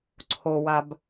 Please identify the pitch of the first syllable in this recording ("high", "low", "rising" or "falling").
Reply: low